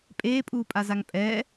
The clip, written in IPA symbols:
pʼ eː pʼ uː pʼ a z a ŋ pʼ ɛ

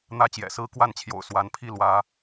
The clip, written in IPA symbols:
n̪ ä˦ t͡ɕ j ɛ̰˨˩ s ɹ̩˦ k w a˥˨ n t͡ɕʰ j o̰˨˩ ʊ̯ s w a˨˦ n pʰ i˥˨ l w ä˨˦

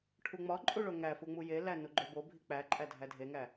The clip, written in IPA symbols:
ʈʰ u ŋ͡m ɒ ǃʼ u ɭ o ŋ æ f u ŋ͡m u j e l æ n u ɡ͡ǃ o b o bʱ i k͡p æ ǃʼ æ dʱ æ dʱ e ŋ æ

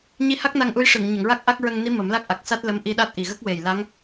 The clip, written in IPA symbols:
ɲ i˧ h a˦˥ k̚ n a˧ ŋ ʔ u˧˥ j ʂ ɨ˨˩˨ ŋ ɲ ə˨˩˨ ŋ ɹ a˦˥ k̚ ʔ a˦˥ k̚ ɹ ə˧ ŋ n i˧˥ m ə˨˩˦ m l a˦˥ k̚ ʔ a˨˩ k̚ s a˦˥ t̚ l ə˧˥ m ʔ i˧ ɗ a˦˥ t̚ ʔ i˨˩ ɣ ə˦˥ k̚ w e˨˩ j l a˧˥ ŋ

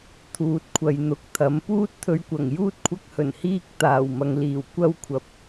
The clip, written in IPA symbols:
t̪ʰ uː˨ t̚ kʷʰ ɐ˨ j n̪ ʊ˨˥ k̚ t̪ʰ ɐ˨˥ m p uː˥ t̚ t̪ʰ ɵ˧ ɥ kʷ ɐ˨˩ ŋ j uː˥ t̚ kʷʰ ɐ˥ k̚ h ɵ˨˩ n h iː˥ k̚ t̪ aː˨˩ w m ɐ˨ ŋ l iː˨˩ w kʷ ɐ˥ w kʷʰ ɐ˨ p̚

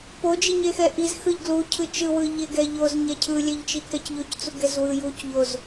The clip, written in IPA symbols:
p o d͡ʒ i ɲ e x ɛ ʔ i z x ɯ ʎ ɡ l u cʰ ɯ t͡ʃ ɯ w ɯ ʎ e ɡ ɛ ʎ o z ɲ ɛ cʰ ɯ lʲ ɛ ʎ t͡ʃ i k ɛ c ʎ o c t͡s u ɡ ɛ z w ɯ j u c ʎ o z

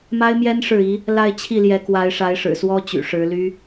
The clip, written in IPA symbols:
m a˥ ɪ̯ m j ɛ˥ n ʂ ɻ̩˥˩ i˧˥ | l a˥˧ ɪ̯ t͡ɕʰ i˥˩ l j ɛ˧˥ k w a˧˥ ɪ̯ ʂ a˧˥ ɪ̯ ʂ ɻ̩˨˩ s w ɔ˥ t͡ɕ y̰˨˩ ʂ ɻ̩˧˥ l y˥

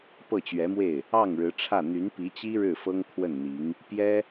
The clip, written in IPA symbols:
p ɤ˥˩ t͡ɕ ɥ ɛ˧˥ m w e˥˩ ɪ̯ | ɑ˥˩ ŋ ɻ ɻ̩˧˥ ʈ͡ʂʰ ä˥˩ n̪ y˧˥ n p i˧˥ t͡ɕ i˥ ɻ ɻ̩˥˩ f ɤ˥ ŋ kʰ w ə˥˩ n n̪ i˧˥ ŋ | p j ɛ˥

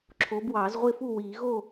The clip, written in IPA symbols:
ǁʰ oː˨˦ b w ɑː˨˩˦ z ʁʷ ɪː˥˨ f u˥˨ w iː˨˩˦ ɣ o˥˨

